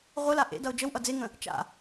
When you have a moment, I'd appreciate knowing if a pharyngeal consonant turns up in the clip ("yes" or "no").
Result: no